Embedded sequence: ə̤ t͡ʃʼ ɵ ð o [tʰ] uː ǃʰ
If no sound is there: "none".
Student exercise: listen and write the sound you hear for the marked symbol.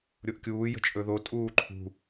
tʼ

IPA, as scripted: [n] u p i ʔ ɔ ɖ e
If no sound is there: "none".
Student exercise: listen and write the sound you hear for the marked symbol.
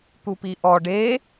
t̪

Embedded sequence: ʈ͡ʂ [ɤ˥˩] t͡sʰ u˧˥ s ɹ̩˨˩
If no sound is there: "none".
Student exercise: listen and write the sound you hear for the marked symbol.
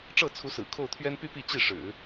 ɤ˥˩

